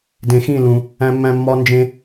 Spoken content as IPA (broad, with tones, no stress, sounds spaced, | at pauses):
d ẽ˨ x ĩ˦˨ l ũ˨ | æ̃˦ mː æ̃˦ mː ɒ˦ n d͡ʒ ẽ˦